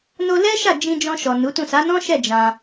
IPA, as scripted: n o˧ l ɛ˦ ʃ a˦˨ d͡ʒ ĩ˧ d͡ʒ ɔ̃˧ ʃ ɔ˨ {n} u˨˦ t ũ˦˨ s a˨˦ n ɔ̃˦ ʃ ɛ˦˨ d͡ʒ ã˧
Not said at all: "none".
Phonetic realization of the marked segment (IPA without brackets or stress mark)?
n